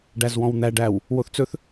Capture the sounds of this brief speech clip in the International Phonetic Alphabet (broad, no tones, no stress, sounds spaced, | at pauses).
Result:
ɖ æ z w ɔ̃ w n̪ æ ɖ æ w | w o θ t͡s ɵ θ